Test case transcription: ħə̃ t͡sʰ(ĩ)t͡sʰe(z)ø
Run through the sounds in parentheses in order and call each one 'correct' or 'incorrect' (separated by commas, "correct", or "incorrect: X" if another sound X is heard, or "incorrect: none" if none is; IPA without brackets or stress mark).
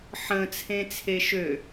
incorrect: ẽ, incorrect: ʃ